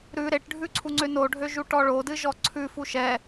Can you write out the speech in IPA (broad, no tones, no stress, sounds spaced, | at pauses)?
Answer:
ɾ ʉ ɾ e ʈ ɖʱ ʉ ǀʰ u ŋ͡ǀ ø n o ɖʱ ø ʒ u ʈ ɔ ɭ o d ɨ ʒ ɔ ǀʰ ʉ f u ʃ ɛ